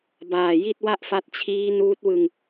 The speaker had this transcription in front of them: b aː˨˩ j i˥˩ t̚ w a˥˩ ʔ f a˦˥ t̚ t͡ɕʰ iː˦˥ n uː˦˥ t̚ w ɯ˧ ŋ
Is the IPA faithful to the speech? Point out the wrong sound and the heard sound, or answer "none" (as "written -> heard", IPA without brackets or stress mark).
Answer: none